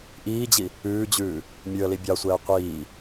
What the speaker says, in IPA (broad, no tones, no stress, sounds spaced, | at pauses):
ʔ iː d͡ʑ i | ʉː d͡ʑ ʉː | mʲ ʉ ə̯ l i bʲ ɑ sʷ ɛː qʷ iː